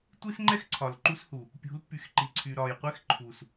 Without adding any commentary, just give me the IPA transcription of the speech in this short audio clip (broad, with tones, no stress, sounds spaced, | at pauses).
tʷ i˦ s ŋ͡ǃ ɛ˦ x ǀʰ ɒ˨ l ǃ u˦ s h u˨ | pʲ ṳ˨˦ l pː y˨ x ǃ i˨ ǀʰ y˨ ɾ ɒ˨ j qʷ ɛ˦ x ǃʰ u˨ s